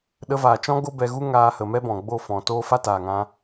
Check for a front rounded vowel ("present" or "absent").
absent